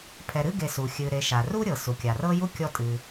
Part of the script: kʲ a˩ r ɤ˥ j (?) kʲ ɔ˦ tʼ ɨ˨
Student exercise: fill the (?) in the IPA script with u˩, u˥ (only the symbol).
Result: u˥